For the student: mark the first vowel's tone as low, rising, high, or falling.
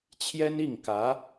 high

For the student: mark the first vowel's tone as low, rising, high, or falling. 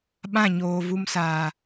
falling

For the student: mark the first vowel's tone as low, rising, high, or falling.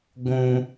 high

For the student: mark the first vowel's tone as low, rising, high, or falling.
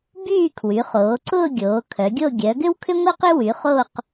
falling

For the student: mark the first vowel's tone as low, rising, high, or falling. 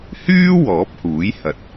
high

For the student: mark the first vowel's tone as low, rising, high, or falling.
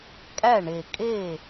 falling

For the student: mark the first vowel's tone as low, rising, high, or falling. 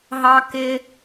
high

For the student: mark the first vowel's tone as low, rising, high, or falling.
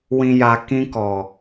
low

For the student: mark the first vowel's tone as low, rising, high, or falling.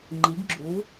rising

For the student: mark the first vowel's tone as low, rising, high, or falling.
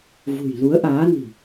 low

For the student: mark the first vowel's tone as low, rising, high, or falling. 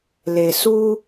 low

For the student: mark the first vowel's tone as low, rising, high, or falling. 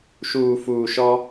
low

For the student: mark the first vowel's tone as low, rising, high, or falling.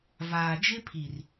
low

